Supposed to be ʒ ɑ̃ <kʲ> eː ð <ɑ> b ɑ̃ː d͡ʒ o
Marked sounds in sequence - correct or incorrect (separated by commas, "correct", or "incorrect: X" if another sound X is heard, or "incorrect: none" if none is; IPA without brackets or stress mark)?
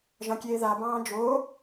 correct, incorrect: a